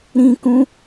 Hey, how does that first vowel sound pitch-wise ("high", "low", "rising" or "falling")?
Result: high